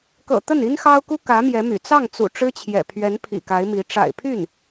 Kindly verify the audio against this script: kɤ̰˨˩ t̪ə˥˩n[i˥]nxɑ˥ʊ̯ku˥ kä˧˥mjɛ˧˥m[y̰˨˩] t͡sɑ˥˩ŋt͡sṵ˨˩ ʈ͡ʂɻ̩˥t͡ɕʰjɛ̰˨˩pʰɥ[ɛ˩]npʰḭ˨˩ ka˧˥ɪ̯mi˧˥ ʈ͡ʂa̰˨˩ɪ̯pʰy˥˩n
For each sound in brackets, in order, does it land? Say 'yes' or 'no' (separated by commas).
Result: yes, yes, no